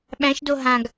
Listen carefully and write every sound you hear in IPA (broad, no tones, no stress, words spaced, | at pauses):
ɓæ̃ʃdo ɦãɡ